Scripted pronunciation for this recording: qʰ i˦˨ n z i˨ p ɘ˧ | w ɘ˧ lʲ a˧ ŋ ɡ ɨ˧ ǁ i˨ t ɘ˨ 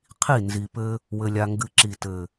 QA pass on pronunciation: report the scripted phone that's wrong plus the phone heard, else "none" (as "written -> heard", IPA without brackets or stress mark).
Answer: none